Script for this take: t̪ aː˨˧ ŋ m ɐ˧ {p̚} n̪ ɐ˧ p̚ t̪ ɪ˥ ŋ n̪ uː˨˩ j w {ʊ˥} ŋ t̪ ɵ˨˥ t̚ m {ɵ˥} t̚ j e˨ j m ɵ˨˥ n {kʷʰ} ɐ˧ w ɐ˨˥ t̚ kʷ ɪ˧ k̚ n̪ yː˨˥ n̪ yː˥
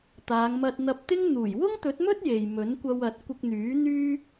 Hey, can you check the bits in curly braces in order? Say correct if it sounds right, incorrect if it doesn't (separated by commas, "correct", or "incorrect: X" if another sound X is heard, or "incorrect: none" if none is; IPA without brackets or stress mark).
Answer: incorrect: t̚, correct, correct, incorrect: kʷ